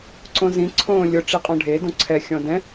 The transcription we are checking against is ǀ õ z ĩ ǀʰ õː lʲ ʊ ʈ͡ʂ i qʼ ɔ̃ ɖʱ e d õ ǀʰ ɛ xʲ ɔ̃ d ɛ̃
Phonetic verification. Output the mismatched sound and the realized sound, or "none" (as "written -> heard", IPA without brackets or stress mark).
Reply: none